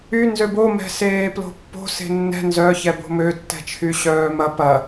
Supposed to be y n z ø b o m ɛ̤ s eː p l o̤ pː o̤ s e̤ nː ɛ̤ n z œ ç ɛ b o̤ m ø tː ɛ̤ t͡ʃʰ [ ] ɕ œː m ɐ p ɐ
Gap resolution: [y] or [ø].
y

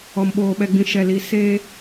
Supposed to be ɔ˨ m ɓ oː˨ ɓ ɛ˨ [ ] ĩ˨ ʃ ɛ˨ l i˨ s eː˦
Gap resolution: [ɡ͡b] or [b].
ɡ͡b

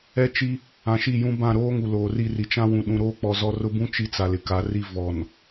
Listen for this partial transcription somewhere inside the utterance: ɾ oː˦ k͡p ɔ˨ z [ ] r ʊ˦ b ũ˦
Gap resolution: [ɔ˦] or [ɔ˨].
ɔ˨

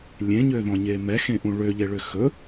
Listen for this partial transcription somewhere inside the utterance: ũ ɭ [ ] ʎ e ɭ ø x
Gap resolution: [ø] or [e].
ø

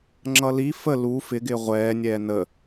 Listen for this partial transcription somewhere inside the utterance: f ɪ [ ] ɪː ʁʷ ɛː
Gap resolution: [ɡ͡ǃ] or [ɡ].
ɡ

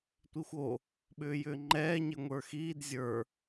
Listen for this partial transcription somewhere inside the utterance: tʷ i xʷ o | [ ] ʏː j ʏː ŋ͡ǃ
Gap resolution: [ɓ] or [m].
ɓ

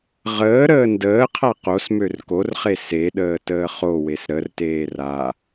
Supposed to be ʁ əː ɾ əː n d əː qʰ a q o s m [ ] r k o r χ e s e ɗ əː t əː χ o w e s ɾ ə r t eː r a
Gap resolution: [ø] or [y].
ø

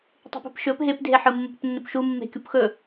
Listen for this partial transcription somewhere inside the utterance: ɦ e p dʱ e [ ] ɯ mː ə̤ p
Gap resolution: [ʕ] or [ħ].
ħ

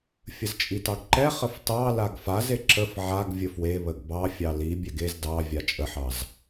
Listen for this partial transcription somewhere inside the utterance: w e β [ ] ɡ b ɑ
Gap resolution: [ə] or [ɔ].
ə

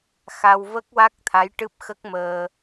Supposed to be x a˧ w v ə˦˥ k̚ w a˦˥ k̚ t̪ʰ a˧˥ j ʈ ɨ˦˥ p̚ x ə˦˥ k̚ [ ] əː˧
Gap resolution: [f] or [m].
m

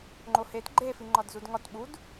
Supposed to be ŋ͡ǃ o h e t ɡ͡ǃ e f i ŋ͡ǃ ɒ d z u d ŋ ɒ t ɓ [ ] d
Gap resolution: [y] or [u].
u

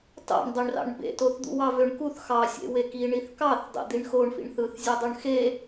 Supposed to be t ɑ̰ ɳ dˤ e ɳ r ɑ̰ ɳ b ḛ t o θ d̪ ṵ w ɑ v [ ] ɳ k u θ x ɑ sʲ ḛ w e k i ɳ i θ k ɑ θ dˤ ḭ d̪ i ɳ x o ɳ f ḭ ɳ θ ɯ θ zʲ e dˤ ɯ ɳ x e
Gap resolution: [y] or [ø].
ø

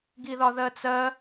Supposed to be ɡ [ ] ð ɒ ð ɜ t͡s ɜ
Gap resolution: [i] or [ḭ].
i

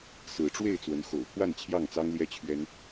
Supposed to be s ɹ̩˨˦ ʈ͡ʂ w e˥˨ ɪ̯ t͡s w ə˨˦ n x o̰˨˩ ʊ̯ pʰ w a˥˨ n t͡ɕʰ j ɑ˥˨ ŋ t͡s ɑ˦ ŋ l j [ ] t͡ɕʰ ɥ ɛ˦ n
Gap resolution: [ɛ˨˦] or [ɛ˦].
ɛ˦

